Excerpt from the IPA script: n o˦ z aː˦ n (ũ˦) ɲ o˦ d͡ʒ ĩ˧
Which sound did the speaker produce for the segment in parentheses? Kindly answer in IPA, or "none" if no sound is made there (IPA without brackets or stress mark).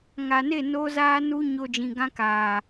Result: u˦